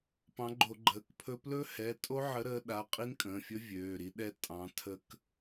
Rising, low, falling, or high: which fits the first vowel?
rising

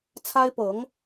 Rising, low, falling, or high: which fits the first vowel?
high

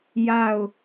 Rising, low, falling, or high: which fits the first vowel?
falling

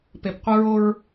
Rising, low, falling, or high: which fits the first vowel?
low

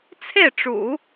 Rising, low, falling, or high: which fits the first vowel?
falling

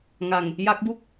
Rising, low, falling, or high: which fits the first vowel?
low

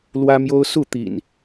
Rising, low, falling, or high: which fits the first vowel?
high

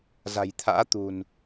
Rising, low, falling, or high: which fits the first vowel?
low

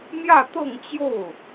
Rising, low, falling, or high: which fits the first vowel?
falling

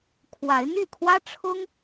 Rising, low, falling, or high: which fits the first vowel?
rising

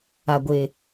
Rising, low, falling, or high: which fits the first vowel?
low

